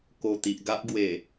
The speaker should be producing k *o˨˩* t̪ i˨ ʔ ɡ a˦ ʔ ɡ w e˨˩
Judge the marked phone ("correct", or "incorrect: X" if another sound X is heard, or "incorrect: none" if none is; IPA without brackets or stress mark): correct